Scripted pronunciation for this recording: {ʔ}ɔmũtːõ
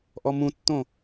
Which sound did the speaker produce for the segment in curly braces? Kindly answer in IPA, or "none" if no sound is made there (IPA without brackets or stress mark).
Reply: ʔ